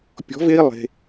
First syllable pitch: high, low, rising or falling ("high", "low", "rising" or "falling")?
rising